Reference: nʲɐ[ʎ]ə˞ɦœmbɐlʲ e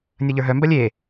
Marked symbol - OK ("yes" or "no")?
yes